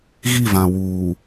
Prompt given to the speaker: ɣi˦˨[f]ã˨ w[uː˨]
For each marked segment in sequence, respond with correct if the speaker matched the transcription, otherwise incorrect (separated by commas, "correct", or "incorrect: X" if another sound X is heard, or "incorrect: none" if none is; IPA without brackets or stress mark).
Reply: incorrect: v, correct